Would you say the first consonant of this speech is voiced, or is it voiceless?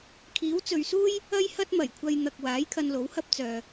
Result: voiceless